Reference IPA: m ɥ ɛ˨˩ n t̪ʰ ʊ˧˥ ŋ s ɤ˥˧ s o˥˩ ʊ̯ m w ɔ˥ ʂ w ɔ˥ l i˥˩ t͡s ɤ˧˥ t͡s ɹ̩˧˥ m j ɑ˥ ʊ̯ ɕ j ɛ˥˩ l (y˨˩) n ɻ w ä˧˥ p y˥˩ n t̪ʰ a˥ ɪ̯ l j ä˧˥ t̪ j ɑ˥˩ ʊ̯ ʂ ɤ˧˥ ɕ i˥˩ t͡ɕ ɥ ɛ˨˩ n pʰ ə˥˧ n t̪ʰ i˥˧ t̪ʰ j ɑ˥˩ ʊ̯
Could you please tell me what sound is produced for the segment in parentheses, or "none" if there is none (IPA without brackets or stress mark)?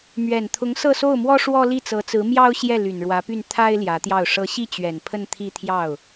y˨˩